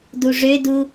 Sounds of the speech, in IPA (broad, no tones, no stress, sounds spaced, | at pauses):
d u ʐ ø d u